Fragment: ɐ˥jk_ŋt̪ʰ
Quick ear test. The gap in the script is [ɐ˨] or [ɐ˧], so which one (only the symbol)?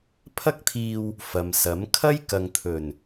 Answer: ɐ˨